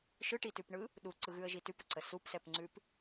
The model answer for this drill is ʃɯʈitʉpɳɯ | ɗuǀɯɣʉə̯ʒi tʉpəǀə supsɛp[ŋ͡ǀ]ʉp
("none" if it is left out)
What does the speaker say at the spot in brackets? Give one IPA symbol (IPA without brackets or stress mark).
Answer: ŋ͡ǀ